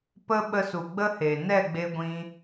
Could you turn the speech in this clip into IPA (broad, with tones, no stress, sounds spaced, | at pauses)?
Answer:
p ə˦ ɓ ə˧ s u˨ ɡ͡b ə˦ h e˨ n ɛ˦˨ ɡ͡b e˧ ɡʷ ĩ˧